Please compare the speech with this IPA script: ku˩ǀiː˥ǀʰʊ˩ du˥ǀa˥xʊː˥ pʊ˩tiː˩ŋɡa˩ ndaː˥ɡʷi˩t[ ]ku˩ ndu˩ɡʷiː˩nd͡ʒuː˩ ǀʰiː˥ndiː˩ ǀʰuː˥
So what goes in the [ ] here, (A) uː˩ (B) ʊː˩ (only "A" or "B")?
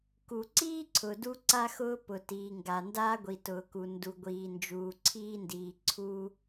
B